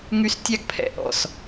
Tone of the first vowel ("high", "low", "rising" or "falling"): high